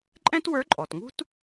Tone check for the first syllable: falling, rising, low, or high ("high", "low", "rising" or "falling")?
high